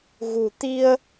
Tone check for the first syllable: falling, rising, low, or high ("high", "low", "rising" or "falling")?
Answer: low